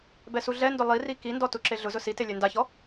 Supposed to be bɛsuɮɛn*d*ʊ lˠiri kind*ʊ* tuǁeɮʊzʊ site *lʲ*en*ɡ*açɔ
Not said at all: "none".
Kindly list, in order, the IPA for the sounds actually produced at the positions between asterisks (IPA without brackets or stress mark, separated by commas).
d, ɔ, lʲ, d